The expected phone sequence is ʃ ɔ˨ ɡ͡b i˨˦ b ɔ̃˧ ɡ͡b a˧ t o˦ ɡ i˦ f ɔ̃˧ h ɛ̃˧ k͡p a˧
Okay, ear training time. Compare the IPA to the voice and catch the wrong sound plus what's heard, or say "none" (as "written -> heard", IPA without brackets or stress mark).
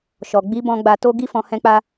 none